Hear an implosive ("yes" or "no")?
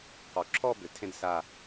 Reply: no